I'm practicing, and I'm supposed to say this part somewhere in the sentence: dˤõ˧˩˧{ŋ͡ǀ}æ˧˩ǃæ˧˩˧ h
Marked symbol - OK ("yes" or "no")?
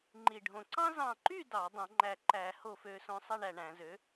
no